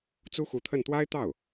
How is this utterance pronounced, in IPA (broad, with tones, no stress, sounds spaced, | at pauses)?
t͡s u˥ x u˧˥ t̪ʰ ə˥˩ n t̪ w a˥ ɪ̯ t̪ ɑ˥˩ ʊ̯